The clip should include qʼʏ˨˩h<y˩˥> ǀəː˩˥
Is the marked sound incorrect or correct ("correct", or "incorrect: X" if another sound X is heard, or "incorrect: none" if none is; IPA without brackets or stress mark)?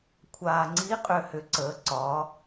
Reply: incorrect: ʏ˩˥